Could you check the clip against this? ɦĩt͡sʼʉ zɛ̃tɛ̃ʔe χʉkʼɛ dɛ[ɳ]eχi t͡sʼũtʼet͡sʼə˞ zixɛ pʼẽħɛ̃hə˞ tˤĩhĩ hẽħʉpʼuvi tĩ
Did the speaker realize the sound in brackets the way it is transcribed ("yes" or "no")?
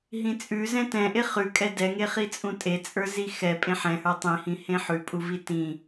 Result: no